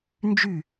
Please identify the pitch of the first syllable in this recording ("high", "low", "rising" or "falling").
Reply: falling